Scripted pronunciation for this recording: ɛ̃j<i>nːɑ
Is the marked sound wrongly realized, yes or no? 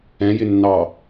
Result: yes